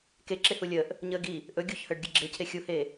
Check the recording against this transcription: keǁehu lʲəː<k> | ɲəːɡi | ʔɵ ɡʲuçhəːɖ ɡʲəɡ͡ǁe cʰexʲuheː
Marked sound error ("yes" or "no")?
yes